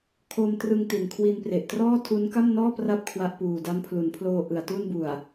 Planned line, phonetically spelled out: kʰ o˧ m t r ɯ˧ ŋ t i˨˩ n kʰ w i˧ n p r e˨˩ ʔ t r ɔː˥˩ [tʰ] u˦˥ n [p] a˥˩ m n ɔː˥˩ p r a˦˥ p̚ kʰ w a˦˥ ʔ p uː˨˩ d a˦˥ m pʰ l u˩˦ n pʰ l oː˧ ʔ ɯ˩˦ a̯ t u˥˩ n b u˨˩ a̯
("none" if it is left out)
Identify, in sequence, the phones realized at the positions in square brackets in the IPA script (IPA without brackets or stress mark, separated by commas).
tʰ, k